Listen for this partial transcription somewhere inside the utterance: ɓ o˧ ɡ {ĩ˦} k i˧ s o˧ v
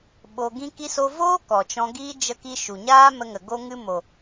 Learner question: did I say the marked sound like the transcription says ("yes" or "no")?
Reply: yes